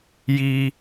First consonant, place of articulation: palatal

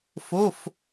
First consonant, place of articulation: labial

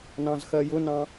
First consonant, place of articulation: alveolar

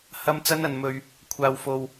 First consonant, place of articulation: glottal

